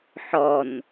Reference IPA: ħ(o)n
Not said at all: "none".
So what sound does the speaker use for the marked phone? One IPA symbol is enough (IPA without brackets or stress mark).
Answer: ɔ